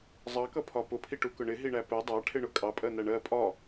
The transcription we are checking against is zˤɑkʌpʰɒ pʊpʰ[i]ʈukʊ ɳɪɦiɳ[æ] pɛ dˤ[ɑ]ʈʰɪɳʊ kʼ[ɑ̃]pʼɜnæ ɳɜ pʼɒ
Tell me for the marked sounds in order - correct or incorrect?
correct, correct, correct, incorrect

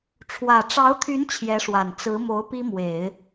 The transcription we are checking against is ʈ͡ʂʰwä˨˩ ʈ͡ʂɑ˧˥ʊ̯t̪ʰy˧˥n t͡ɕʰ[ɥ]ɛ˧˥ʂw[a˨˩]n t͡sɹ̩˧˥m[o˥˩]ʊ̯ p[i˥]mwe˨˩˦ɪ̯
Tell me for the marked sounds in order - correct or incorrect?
incorrect, correct, incorrect, correct

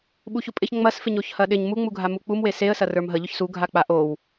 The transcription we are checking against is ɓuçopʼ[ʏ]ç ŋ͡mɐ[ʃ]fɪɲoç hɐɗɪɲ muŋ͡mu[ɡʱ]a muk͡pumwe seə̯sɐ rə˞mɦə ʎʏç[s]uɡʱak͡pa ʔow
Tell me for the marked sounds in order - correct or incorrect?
incorrect, incorrect, correct, correct

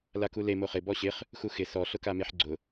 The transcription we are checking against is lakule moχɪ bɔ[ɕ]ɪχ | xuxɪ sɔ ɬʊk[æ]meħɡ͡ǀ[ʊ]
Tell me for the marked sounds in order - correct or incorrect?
correct, incorrect, correct

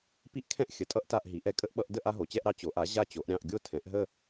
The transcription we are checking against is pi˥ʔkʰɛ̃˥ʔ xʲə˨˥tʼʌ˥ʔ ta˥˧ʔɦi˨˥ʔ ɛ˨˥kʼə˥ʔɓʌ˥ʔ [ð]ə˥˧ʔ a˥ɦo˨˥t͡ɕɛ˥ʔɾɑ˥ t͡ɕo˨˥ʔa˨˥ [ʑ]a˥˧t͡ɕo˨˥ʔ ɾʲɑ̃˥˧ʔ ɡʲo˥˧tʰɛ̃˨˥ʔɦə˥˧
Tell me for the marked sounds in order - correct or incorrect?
incorrect, correct

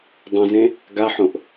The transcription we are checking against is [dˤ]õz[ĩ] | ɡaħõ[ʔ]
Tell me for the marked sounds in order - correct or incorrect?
correct, incorrect, correct

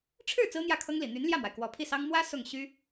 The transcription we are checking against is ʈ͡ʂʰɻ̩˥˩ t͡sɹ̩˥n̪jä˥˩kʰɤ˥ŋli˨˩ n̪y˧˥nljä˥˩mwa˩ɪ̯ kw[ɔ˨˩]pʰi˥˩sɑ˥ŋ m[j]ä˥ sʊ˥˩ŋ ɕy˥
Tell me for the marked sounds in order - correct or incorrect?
correct, incorrect

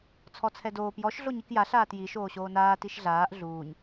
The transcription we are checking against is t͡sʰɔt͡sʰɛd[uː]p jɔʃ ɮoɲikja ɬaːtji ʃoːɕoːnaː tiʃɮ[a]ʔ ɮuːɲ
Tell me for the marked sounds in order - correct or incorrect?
incorrect, incorrect

